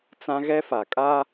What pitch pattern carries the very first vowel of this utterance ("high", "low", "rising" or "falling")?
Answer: high